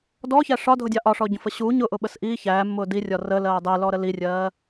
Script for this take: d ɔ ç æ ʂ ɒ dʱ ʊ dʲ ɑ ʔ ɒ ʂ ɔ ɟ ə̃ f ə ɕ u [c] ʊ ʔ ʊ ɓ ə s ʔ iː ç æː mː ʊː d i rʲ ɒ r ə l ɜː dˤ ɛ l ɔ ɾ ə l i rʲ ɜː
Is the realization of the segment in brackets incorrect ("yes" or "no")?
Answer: yes